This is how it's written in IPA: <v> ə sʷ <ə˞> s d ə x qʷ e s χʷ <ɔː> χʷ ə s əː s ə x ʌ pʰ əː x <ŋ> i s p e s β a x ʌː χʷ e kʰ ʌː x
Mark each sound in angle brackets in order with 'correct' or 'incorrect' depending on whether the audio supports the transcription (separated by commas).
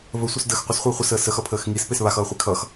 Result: correct, incorrect, incorrect, correct